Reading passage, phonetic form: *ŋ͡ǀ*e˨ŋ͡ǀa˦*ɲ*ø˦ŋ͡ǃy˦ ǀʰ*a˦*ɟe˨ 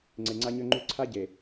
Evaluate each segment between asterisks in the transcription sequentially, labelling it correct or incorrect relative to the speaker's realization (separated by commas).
correct, correct, correct